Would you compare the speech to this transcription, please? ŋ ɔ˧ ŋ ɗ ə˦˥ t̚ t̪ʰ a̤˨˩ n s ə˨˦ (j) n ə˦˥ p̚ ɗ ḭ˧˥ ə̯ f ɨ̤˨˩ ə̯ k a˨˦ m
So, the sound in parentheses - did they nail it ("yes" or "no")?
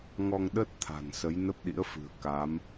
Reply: yes